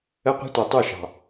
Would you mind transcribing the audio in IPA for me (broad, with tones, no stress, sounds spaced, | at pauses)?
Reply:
ə˦ qʷ ɛ̤˦ tʷ ɑ˨ tˤ u˦˨ ʃ ɑ̤˨